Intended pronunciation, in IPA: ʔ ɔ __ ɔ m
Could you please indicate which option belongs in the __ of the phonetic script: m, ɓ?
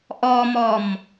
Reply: m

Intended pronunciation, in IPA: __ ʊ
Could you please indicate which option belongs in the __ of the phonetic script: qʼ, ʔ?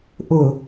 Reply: ʔ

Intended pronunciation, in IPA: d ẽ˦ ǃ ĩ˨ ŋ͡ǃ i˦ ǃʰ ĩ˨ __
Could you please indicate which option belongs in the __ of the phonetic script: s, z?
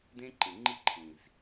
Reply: z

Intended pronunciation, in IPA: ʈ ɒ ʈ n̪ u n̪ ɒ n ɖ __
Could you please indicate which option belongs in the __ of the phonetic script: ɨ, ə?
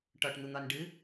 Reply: ɨ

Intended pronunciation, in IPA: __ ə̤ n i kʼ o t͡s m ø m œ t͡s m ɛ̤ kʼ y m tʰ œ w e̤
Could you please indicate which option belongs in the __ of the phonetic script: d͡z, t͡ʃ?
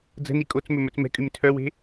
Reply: d͡z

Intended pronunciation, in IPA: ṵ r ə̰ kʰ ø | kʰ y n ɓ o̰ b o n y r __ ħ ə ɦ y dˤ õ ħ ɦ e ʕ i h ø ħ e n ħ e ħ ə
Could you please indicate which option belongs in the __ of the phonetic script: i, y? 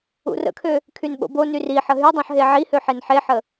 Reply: i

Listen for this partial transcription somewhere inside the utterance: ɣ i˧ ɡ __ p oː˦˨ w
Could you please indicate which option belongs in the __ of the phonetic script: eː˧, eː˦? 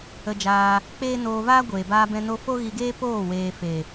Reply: eː˦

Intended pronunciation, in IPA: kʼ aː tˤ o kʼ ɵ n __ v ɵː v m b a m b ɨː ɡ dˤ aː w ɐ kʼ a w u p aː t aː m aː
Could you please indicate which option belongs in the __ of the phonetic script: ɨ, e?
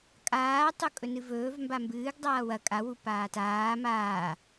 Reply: ɨ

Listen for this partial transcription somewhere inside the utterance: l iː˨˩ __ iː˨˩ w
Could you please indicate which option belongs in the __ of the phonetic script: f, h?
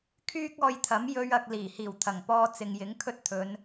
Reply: h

